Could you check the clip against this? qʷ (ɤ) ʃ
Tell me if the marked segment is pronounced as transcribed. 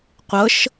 yes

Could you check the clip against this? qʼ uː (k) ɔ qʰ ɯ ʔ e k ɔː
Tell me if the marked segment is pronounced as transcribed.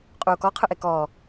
yes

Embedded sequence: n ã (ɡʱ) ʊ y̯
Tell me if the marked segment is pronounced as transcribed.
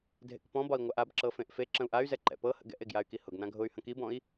yes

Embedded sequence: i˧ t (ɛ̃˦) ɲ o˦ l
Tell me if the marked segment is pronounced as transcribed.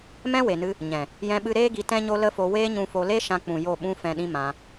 yes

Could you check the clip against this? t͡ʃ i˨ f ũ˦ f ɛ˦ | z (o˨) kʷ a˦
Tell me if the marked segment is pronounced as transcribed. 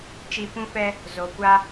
yes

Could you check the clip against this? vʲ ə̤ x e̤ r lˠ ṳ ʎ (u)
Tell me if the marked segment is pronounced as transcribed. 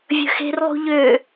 no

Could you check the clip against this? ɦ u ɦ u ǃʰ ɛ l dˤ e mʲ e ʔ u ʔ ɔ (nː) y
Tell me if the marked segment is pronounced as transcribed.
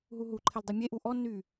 yes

